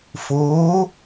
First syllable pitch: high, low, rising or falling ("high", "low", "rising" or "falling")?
rising